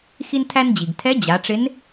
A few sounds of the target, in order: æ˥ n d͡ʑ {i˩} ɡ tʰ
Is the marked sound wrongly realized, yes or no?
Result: no